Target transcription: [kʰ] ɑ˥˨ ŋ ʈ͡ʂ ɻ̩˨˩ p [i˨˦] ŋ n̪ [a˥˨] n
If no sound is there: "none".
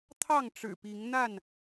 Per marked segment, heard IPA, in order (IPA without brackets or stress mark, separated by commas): t̪ʰ, i˨˦, a˥˨